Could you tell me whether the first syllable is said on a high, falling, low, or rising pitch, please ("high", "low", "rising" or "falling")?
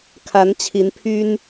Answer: rising